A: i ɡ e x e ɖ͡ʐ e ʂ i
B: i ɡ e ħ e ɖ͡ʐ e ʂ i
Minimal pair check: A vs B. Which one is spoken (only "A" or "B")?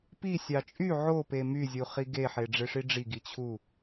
B